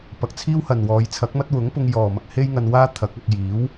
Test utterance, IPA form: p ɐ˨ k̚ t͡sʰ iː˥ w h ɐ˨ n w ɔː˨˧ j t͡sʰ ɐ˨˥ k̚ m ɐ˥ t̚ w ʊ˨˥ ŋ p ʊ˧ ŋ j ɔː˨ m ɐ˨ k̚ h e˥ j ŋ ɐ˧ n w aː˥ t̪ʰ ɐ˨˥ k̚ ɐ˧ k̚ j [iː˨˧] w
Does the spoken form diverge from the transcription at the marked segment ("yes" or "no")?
yes